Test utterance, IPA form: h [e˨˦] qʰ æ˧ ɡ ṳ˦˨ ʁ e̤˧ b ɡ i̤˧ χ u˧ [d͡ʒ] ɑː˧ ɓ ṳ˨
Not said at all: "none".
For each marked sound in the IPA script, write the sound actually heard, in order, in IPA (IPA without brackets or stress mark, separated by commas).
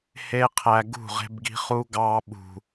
e˦, ɡ